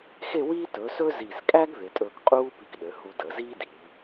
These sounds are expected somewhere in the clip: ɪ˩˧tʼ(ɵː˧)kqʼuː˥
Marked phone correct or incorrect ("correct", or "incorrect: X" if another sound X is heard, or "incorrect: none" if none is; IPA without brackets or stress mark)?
correct